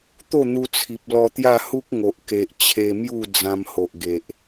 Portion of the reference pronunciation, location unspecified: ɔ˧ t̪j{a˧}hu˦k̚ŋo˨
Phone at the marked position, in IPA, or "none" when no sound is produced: a˥˧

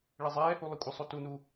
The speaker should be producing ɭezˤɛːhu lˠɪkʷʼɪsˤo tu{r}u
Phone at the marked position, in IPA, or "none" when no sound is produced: n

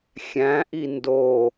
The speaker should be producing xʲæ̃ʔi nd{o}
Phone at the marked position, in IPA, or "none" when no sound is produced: o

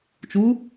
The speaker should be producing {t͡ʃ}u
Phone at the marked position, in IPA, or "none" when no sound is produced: t͡ʃ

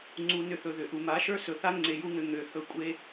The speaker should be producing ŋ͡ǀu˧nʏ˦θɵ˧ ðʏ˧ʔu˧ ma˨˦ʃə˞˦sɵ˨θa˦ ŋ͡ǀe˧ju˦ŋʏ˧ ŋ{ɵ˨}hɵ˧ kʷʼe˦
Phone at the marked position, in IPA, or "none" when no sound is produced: ø˨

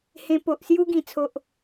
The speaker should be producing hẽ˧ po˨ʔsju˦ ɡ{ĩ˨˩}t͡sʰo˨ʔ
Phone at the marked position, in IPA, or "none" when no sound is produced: ĩ˨˩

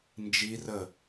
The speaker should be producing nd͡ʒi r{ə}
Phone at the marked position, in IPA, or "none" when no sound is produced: ə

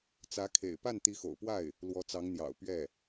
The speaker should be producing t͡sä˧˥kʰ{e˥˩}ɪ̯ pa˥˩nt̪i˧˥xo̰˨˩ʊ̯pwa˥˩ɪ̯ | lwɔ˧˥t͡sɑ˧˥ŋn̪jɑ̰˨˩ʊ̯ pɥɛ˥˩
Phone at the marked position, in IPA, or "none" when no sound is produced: ḛ˨˩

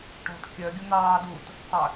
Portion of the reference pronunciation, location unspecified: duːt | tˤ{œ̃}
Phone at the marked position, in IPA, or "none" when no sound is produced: œ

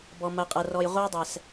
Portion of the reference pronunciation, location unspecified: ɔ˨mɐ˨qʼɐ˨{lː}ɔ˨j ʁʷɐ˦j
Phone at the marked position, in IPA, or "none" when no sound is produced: r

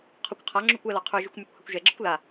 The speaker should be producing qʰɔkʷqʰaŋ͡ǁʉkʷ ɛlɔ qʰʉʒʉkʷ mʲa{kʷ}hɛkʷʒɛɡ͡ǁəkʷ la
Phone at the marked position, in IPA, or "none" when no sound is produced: kʷ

